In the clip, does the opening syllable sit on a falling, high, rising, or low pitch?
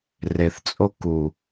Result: low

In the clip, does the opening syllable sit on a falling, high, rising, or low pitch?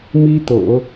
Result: high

